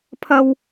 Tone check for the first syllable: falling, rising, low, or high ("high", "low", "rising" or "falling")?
high